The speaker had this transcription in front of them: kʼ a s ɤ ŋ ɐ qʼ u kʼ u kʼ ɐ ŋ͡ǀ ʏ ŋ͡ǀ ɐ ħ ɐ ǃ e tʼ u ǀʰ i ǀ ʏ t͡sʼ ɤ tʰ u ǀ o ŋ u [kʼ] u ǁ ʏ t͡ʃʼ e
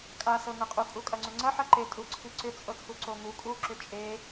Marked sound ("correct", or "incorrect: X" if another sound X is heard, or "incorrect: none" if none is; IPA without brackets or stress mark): correct